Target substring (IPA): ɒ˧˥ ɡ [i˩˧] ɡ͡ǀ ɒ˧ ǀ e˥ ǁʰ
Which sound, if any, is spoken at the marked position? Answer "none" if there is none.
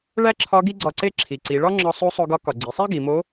i˥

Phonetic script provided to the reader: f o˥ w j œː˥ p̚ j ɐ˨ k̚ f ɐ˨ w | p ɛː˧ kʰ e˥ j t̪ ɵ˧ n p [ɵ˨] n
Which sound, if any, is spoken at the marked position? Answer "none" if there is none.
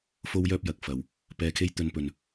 ɵ˨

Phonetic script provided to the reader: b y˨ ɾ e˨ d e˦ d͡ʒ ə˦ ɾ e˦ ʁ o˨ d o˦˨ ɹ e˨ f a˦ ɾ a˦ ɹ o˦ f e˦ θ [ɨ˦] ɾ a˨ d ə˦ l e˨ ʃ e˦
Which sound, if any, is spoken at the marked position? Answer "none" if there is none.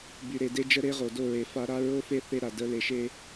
e˦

